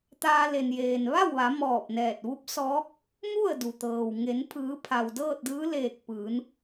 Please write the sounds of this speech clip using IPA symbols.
t̪ aː˧ l e˩ n j eː˩ n ʋ a˥˨ w ʋ a˩˧ m ɔː˧˩ p̚ n ɛː˧˩ t̚ ʋ u˧˥ p̚ s ɔː˧˥ k̚ | m u˥˨ ə̯ d u˩ t̪ ɤː˩ w ŋ e˩˧ n pʰ ɯː˩˧ pʰ a˩ w d ɤː˥˨ t̚ d ɯː˧˥ l eː˧˩ k̚ p ɯː˩˧ n

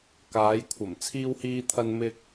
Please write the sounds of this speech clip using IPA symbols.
k aː˨˧ j kʷʰ ɐ˨˩ m t͡sʰ iː˧ w h iː˧ t̪ʰ ɐ˧ n m ɪ˧ k̚

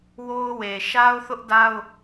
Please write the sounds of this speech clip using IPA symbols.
w o˦ ʊ̯ w e˨ ʃ a˦ ʊ̯ θ ʊ˦ ʔ d a˦ ʊ̯

